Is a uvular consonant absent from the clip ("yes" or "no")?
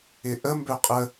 no